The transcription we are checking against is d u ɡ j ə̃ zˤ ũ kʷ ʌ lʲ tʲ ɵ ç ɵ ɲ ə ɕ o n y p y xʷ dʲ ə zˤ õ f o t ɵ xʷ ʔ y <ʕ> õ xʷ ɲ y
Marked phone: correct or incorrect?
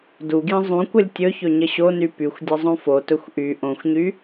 incorrect